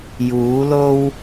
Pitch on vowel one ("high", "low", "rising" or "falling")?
rising